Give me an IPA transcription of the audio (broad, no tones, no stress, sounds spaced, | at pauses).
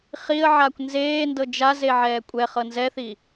χ i ə̯ ʕ aː kʷ n z eː n d ɤ d͡ʒ a z e ʕ ɛː kʷʼ ɛ χ ɤ n z ɛ θ i